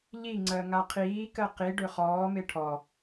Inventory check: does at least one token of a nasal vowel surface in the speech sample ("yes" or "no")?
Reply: no